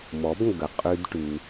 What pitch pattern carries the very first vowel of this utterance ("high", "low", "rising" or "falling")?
rising